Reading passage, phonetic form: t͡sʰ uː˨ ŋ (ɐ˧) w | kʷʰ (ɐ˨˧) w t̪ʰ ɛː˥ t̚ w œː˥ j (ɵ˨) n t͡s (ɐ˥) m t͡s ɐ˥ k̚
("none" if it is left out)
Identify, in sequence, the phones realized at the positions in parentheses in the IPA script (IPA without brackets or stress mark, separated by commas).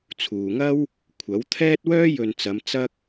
ɐ˥, ɐ˨˥, ɵ˨, ɐ˨˧